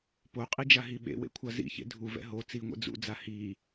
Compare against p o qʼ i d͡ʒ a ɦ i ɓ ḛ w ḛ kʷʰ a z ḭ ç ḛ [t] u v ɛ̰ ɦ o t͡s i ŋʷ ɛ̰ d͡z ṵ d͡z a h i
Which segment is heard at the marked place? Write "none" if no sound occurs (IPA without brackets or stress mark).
dʱ